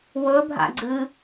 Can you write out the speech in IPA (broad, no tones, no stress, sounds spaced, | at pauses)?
w ɵ bʱ a̰ ɡ͡ǀ ɨ